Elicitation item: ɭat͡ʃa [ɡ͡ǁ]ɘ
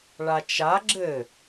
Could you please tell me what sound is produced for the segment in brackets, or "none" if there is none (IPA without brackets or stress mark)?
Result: ɡ͡ǁ